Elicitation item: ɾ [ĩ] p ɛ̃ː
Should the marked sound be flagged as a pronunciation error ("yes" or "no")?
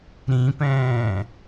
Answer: no